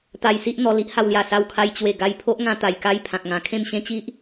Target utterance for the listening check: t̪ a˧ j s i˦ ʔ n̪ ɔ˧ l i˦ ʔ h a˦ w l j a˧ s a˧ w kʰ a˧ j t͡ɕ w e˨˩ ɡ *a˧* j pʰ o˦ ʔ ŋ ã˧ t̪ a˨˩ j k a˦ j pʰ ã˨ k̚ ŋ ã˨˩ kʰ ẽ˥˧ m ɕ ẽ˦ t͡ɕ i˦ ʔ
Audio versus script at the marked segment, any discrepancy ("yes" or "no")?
no